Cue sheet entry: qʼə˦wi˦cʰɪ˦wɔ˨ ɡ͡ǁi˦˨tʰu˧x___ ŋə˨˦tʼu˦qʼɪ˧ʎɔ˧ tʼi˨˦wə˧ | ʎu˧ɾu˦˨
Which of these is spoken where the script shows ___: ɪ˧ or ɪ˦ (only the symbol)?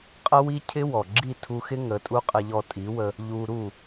ɪ˦